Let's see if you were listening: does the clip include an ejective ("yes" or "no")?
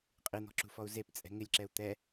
yes